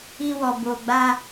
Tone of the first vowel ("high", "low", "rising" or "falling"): high